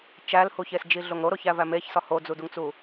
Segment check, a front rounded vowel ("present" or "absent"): absent